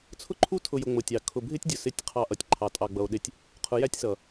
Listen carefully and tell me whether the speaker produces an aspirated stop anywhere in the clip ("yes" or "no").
yes